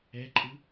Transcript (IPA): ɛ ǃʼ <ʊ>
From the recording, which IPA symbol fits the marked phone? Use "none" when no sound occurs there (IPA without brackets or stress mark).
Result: ɯ